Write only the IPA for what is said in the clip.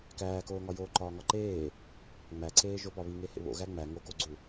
kæːkoːŋɒ joːǃɒːŋɒǃeː | ŋ͡mæǀeːʒo pɒβiŋe hḛβo̰ ɣæŋ͡mæ ŋokoɡ͡ǀu

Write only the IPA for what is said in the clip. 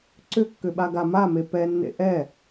ǀʏkːʏɓa ɡamame pɛnːḛ ʔɛ

